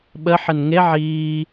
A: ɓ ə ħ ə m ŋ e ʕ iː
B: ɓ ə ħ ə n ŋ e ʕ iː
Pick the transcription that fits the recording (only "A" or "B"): B